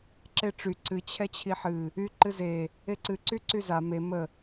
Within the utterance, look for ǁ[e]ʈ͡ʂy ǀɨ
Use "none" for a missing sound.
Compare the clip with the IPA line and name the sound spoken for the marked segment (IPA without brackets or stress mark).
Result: e